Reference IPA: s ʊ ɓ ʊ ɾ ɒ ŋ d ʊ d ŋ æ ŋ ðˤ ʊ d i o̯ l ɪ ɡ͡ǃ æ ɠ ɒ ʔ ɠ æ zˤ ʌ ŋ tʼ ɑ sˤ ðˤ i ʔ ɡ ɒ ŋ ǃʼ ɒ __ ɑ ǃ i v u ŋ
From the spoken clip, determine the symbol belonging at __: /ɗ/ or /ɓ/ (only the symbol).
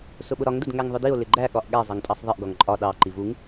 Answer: ɗ